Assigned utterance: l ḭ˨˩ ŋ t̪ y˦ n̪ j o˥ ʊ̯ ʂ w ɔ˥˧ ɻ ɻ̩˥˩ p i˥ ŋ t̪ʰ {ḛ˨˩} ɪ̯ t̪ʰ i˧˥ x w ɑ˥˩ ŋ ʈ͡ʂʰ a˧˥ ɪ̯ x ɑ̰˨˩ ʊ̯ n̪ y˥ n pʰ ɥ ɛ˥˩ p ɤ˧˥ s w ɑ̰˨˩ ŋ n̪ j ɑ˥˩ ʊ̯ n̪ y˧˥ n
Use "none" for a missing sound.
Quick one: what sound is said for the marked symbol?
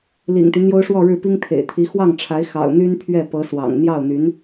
ḛ˨˩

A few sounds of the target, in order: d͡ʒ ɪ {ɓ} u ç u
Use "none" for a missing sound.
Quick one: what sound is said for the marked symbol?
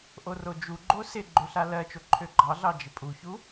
pʼ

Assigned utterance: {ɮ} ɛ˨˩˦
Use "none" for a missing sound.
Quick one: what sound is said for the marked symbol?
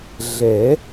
ɮ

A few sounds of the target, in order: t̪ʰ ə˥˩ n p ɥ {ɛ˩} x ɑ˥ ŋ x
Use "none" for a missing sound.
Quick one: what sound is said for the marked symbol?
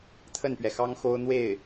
ɛ˩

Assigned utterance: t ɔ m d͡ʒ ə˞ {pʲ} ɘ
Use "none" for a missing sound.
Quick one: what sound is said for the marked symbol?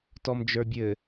bʲ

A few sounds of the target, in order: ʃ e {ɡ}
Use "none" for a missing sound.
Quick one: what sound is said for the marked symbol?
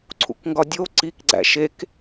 k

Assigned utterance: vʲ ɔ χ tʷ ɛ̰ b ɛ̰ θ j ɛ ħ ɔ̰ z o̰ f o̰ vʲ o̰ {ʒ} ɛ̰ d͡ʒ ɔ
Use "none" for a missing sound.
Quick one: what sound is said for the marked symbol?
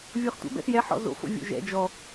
ʒ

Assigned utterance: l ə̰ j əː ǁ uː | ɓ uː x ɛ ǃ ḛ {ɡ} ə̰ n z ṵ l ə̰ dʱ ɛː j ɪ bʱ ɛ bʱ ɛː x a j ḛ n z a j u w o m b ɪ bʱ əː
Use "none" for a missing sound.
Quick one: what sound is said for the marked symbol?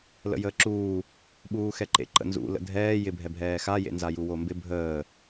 ǃ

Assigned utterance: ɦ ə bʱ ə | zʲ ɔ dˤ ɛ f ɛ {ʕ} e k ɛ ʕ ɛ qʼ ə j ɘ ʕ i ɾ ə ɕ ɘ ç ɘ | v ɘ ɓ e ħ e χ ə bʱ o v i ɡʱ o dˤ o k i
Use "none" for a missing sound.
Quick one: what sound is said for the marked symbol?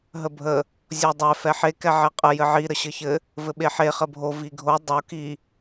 ħ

